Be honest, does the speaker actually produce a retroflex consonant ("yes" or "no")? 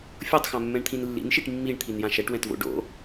yes